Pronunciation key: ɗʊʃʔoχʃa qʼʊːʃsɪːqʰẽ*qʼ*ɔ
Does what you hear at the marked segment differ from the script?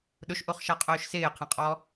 no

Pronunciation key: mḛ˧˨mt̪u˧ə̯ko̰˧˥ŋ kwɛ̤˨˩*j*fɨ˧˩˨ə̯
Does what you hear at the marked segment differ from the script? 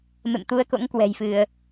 no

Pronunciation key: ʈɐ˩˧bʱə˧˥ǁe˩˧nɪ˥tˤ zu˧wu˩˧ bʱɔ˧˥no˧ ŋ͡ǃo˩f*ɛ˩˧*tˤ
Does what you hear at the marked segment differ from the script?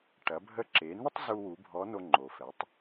no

